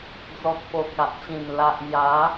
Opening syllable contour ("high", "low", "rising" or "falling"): low